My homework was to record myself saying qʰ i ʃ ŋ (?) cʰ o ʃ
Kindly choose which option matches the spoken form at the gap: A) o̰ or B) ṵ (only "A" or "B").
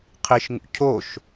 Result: B